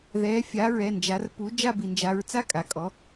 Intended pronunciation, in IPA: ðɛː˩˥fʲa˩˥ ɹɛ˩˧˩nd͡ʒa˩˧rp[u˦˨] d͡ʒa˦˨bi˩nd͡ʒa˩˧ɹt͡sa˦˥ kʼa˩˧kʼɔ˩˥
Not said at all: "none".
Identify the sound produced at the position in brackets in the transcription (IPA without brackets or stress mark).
u˩˥